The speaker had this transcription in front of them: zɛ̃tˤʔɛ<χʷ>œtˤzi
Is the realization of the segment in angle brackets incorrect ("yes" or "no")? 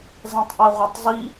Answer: yes